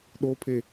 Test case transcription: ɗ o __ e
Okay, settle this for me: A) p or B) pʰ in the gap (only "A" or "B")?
B